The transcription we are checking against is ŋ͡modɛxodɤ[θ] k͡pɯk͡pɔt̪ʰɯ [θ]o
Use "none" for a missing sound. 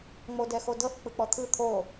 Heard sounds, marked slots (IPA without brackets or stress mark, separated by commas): θ, t̪ʰ